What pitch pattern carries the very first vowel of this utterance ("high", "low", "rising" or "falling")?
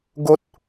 high